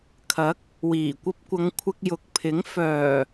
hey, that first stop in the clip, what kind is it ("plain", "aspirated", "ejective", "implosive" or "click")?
aspirated